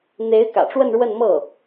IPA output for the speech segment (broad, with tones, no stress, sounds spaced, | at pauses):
n̪ e˧˥ ɪ̯ k ä̰˨˩ ʈ͡ʂ w ə˥˧ n ɻ w ə˥˧ n m ɤ˥˩